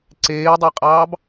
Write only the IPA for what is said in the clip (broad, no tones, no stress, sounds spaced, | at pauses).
ǀ eː dˤ i qʼ ɑː b